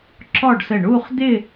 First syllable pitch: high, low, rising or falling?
falling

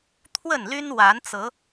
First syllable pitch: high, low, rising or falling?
falling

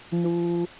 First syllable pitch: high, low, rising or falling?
low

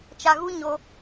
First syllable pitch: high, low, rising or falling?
low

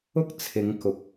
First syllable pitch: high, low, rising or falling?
high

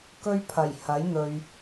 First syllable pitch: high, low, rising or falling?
high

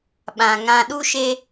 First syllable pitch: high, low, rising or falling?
low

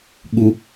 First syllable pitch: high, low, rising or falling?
high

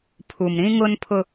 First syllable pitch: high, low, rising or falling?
low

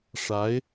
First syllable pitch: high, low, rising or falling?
rising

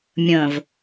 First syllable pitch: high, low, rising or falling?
low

